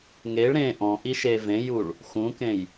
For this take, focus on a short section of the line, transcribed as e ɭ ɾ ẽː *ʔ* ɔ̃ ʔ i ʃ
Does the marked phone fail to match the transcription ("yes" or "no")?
no